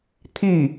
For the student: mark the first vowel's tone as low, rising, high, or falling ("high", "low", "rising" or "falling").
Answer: falling